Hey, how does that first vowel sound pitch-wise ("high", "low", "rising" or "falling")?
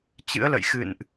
rising